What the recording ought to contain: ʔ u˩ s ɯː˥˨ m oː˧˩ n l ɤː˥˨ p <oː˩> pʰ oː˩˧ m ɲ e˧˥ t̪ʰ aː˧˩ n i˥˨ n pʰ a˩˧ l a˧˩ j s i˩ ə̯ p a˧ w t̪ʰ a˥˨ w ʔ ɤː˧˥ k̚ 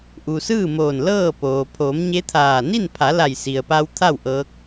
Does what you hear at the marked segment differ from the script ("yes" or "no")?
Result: no